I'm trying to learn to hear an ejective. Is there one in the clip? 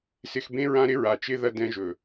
no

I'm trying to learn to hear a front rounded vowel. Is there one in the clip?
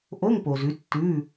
no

